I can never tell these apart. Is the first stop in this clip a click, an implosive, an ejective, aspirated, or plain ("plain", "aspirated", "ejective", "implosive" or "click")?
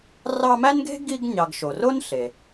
plain